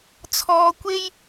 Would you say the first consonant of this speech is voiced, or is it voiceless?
voiceless